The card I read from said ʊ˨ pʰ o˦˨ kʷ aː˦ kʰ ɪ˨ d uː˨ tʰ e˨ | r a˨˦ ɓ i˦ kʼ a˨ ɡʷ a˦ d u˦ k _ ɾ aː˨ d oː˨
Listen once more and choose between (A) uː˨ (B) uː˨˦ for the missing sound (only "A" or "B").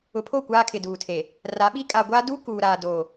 A